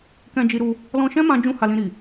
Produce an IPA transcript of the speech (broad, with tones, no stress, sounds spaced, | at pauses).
k ɛ̃˧ d͡ʒ i˧ ɾ u˧ | l ɔ̃˧ ʃ ɛ̃˦ m ã˧ d͡ʒ ũ˦ h a˧ l ĩ˧ ɾ i˨